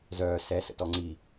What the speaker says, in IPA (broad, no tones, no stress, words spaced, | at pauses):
zœː sɛ sə̰tɔŋ͡ǀi